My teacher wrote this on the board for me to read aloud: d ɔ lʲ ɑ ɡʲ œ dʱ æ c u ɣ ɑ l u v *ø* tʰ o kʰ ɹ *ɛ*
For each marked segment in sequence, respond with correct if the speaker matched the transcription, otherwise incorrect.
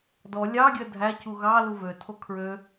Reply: correct, incorrect

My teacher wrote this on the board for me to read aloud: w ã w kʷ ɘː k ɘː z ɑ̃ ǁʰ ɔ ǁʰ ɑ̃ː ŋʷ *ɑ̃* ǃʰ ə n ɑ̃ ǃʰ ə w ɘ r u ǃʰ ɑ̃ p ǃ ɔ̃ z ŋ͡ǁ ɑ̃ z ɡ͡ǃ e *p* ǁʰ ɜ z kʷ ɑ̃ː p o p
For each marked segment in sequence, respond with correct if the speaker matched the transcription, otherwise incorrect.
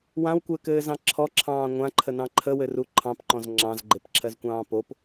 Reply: incorrect, correct

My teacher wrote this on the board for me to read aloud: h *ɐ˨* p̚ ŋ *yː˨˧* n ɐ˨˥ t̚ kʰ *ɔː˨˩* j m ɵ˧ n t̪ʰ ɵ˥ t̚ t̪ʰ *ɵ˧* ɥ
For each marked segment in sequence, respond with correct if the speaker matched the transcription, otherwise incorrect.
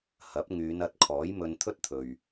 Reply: incorrect, correct, incorrect, incorrect

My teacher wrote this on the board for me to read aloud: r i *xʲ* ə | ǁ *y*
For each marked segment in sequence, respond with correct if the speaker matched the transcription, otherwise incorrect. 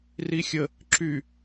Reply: correct, correct

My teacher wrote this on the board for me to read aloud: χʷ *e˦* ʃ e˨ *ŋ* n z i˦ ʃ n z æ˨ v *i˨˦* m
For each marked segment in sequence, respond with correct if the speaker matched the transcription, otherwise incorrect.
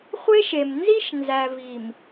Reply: correct, incorrect, incorrect

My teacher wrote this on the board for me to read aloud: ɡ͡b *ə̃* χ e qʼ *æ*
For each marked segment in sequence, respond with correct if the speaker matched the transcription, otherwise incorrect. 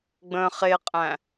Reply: correct, incorrect

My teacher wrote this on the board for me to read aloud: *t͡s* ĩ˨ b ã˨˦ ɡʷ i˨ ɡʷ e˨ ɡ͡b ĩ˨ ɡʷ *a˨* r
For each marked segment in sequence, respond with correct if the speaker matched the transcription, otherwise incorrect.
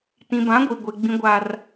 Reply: incorrect, correct

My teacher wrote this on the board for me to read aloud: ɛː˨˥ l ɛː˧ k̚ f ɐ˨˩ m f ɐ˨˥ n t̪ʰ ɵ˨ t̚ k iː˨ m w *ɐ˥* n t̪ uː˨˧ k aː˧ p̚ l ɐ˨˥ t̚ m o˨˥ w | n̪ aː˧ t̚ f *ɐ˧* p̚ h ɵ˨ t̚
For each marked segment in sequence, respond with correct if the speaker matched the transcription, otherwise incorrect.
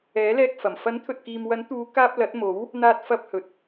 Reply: incorrect, correct

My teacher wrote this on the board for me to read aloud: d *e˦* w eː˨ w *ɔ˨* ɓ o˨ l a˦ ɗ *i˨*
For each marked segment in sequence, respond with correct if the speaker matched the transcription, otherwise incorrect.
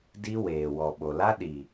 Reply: incorrect, correct, correct

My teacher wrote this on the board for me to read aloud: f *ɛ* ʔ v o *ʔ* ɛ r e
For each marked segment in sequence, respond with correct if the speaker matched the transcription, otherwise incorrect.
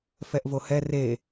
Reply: correct, incorrect

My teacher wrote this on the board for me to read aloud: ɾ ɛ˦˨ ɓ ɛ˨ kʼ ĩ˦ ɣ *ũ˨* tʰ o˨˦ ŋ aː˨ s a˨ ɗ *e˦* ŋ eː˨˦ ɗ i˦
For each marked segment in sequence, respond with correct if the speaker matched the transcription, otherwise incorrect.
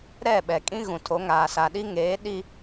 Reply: correct, incorrect

